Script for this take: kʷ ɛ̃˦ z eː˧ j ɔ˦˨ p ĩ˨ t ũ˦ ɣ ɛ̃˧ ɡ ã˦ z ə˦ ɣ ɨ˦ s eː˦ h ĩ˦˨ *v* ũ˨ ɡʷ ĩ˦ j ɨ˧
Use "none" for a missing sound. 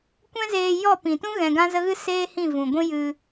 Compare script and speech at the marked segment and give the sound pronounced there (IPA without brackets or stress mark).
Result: v